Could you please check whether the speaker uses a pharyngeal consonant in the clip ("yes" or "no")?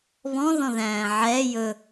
yes